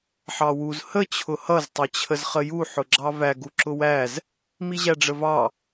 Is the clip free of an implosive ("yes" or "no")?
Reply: yes